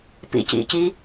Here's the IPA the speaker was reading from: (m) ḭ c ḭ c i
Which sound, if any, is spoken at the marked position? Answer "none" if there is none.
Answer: p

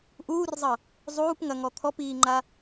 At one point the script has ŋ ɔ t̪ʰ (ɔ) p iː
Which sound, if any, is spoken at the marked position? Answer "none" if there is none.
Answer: ɔ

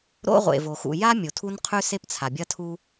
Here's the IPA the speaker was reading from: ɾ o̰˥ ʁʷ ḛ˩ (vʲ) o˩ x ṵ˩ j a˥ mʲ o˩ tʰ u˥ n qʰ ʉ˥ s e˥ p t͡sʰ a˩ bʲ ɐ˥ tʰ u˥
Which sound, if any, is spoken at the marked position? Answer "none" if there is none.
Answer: v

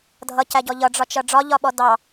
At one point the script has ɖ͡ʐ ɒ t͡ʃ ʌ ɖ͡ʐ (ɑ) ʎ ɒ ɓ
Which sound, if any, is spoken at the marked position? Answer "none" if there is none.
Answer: ɒ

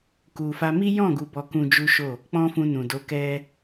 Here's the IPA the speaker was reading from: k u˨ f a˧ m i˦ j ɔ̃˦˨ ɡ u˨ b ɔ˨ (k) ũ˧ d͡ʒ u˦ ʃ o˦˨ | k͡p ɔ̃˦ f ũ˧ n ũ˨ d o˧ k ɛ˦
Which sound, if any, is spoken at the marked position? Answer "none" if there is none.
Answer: k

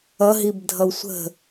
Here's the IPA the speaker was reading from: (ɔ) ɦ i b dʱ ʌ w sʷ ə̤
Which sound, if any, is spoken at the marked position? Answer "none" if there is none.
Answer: ʌ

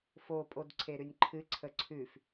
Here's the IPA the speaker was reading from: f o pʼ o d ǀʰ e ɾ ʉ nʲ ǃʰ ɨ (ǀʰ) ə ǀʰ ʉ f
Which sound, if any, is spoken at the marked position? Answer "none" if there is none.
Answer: ǀʰ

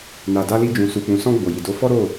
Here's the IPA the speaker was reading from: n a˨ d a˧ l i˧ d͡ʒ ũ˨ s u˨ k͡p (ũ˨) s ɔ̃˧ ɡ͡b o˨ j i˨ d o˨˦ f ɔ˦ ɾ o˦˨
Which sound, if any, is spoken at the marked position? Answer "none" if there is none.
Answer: ũ˨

